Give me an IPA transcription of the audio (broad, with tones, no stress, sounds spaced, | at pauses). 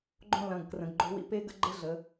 ɡ͡ǃ õ˦˨ l ɐ̃˩˧˩ ɡ k r ə̃˩˧ ɡ ɡ͡ǃ o̤˦ w ḭ˦ p e˦ ɡ ə̰˦ ɡ͡ǃ ɘ˦ ɮ ə˩˧